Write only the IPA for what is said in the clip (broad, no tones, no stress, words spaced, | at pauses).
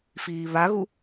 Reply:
fiːβaɣu